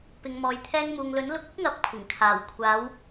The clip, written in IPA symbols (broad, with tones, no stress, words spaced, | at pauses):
pɪ˨ŋ mɔː˨jt̪ʰɛː˧ŋmuː˨ŋlɵ˨˥n lʊ˨˥k̚ ʊ˥k̚ŋɐ˨˥p̚ kʷʰɪ˨˩ŋkʰaː˨˩w kʷʰaː˨˧w